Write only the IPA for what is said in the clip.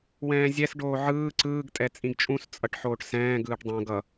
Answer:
w ɛ̃ː zʲ ɛ s ɖ oː ʕ ɯː ǀ ɯː ɡ tʼ ɛ t͡sʼ ĩ ɡ t͡ʃʼ ũ s t͡sʼ ʌ ʈ ħ oː ʈ s ɛ̃ː ɡ ɯː ʈ dˤ õ ɡ ʌ

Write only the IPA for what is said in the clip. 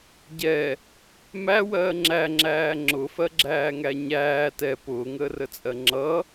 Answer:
ɟ ɛ | m æ w ɜː ŋ͡ǁ æ ŋ͡ǁ æː ŋ͡ǁ ʊ f ɜ ɡ͡ǁ æː ŋ æ ɲ æː t ɛ p ʊː ŋ əː r ə t͡sʼ ɜ ŋ͡ǁ ʌ

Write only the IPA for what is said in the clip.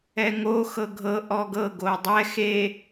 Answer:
ɛ ŋ o x ɤ ɡʱ ɤ ʔ ɔ ɡ ɤ ɡ o dˤ ɛ x e

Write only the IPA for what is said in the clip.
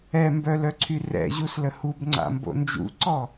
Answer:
ɛ m b œ l œ ǀʰ y r ɛ̰ ʑ u s l ə h u b ŋ͡ǀ a̰ m b o̰ n d͡ʒ ṵ ǀ ɔ

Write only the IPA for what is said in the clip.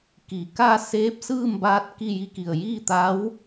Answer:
k i˩ k a˥˨ s eː˧˥ p̚ s ɯː˥˨ m b aː˧ t̚ k i˥˨ j i˥˨ k i˧˩ ə̯ j iː˥˨ t̪ a˧˥ w

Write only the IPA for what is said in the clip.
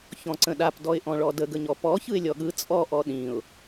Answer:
ç ɔ̃ ǀ ə̃ ɗ a p d ɔ ɪ̯ ʔ ɔ̃ ɭ ɔ d ə ɡ ə ɲ ɔ p ɔ ç ɯ ɪ̯ lʲ ɔ ɠ ɯ t͡sʼ ɔ ʔ ɔ ɗ ĩ ʊ̯

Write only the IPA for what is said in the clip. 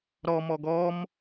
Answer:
ɾ ɔ m ɔ ɡ ɔ m

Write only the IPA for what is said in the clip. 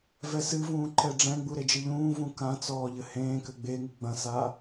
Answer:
v ɛ s ɨ v ũː ǃ ɛ ɖ͡ʐ ɛ̃ ɡ͡b u ɾ e d͡ʒ ɨ ʎ ũː v ũ k ã t͡s ɔː ʎ ɘ h ẽː k ɘ ɡ͡b e ŋ ɨ ɡ͡b ɐ̃ s aː

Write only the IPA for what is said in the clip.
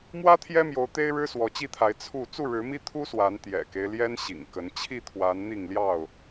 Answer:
m w ä˦ t̪ʰ j ɛ˦ m j o˨˦ ʊ̯ t̪ e˦ ɪ̯ ɻ ɻ̩˦ s w ɔ˨˦ t͡ɕ i˥˨ t̪ʰ a˨˦ ɪ̯ t͡sʰ u˥˨ t͡s u˥˨ ɻ ɻ̩˨˦ m i˦ t̪ʰ u˦ s w a˨˦ n t̪ j ɛ̰˨˩ k e˦ ɪ̯ l j ɛ˦ n ɕ ḭ˨˩ ŋ k ə˨˦ n t͡ɕʰ i˥˨ t̪ʰ w a˨˦ n n̪ i˥˨ ŋ l j ɑ˥˨ ʊ̯

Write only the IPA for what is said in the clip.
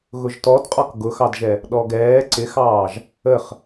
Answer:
ɣ ʊ ʒ t ɔ d qʼ ɒ k ɡ ʊ x ɑ d ʒ ɛ | ɗ ɔ ɡ ɛː ǀ ɪ x ɑː ʒ | ə χ

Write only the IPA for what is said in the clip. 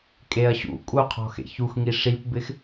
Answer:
kʼ e ɐ̯ ɕ ṵ kʼ u qʰ ɔ̤ x ḛ ç u x ŋ i ʂ i p b ɪ x

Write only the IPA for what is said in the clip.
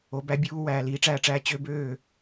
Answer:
o˨˦ b æ˦ bʲ uː˦ w æː˨ l iː˨˦ ʈ͡ʂ æ˦˨ ʈ͡ʂ æː˦ t͡ɕ ø˦ b øː˦˨

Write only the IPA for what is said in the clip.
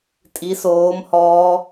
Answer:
tʼ i s oː m h ɔː

